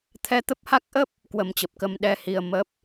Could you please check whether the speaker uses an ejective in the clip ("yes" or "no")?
no